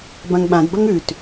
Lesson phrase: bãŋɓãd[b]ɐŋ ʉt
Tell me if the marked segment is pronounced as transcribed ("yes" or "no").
yes